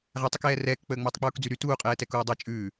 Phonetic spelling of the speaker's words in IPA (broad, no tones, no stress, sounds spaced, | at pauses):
ʁ æ tˤ u k ɛː r ɛː k k͡p əː ŋ͡m əː tˤ k͡p uː k d͡z y ɾ y t uː qʼ ɛː t ɛ k uː dˤ a t͡ʃʼ ʉː